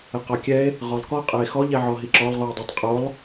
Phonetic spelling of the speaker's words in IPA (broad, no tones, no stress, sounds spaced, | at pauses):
ɛ q ɔ kʲ ɛ e̯ | ʁ ɔ lˠ k ɔ qʼ ɛ e̯ x ɔ ʎ ɛ ʕ ɔ ɦ i ǁ ɔ lˠ ʁ u j dˤ o tˤ qʼ o lˠ